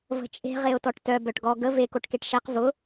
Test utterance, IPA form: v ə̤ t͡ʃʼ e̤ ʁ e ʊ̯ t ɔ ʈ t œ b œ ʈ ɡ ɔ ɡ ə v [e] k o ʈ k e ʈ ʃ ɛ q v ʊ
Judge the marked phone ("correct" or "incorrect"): correct